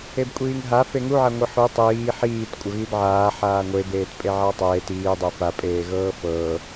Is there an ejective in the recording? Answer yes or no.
yes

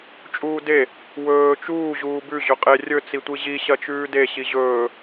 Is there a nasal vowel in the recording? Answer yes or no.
no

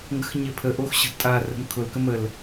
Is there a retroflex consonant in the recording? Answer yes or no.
no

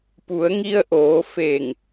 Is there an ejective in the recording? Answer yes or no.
no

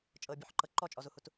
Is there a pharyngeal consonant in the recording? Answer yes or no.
yes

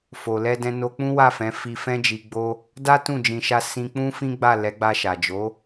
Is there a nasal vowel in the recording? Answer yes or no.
yes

